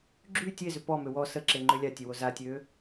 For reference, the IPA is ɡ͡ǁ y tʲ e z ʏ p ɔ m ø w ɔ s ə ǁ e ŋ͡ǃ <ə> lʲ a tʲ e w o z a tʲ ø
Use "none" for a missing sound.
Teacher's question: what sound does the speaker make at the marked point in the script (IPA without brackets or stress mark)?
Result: ʏ